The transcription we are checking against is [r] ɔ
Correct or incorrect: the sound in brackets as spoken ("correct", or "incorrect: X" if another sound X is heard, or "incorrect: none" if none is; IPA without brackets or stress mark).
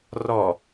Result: correct